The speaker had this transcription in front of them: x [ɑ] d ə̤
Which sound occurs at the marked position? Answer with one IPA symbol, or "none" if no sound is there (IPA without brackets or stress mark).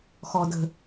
ɔ